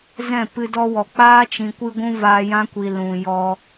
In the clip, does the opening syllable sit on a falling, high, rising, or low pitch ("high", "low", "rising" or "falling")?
falling